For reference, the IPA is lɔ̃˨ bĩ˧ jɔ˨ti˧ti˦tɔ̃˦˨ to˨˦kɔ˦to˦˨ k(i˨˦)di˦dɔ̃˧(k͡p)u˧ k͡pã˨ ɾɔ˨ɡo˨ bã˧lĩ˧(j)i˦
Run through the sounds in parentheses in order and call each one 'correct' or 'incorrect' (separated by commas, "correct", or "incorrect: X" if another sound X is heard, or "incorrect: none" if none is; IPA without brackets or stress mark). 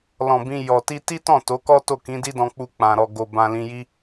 incorrect: ĩ˨˦, correct, correct